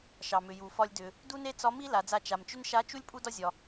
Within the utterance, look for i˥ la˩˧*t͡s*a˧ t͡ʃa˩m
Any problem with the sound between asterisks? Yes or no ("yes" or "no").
yes